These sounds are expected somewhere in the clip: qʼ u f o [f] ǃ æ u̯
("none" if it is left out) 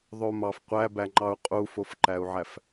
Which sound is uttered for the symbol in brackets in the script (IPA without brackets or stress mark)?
f